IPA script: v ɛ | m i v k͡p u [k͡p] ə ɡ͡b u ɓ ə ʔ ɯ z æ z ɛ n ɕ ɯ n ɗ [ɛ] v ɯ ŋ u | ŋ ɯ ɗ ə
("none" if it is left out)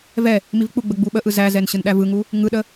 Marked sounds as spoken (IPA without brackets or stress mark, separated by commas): ɡ͡b, æ